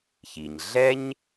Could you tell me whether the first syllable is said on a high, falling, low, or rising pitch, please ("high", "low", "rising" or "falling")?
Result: low